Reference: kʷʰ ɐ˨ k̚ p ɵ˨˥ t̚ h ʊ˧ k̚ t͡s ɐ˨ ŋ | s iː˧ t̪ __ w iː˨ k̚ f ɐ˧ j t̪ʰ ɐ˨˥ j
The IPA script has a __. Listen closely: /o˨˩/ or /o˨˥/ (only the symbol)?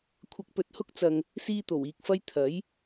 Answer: o˨˩